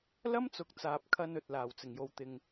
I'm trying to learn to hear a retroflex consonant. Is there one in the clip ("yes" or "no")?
no